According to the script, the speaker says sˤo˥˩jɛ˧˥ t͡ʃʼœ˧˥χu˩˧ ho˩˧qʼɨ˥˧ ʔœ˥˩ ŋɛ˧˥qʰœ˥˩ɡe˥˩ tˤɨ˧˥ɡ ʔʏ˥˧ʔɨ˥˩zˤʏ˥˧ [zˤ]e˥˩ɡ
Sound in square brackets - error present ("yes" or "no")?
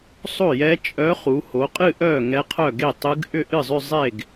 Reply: no